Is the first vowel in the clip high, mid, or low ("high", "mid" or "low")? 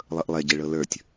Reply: mid